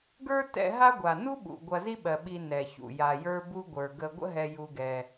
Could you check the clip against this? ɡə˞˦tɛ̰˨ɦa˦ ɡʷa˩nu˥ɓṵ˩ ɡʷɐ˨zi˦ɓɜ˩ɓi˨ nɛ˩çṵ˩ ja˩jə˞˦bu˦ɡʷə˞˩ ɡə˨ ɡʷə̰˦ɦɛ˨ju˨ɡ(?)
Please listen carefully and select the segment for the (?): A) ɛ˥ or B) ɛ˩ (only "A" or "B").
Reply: B